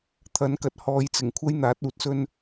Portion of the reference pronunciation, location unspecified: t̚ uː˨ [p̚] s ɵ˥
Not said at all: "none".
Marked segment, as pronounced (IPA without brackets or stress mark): t̚